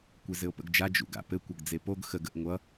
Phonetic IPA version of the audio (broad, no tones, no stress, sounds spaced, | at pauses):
kʷ e z ɘ o̯ p ə̰ ɡ d͡ʒ a d͡ʒ ṵ ɡ a̰ p ɘ kʷ ʌ ɡ d͡z e p o ɡ x ə ɡ ə ʔ ŋʷ ʌ